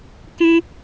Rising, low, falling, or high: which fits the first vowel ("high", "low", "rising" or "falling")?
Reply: high